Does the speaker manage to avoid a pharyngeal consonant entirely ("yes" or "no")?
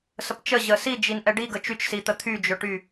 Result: yes